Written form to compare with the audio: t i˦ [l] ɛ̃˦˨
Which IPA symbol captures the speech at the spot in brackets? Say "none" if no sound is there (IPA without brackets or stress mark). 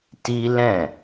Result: l